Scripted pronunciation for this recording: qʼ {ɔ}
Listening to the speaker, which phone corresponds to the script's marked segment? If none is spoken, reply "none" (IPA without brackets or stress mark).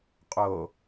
o